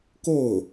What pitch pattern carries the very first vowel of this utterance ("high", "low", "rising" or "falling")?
falling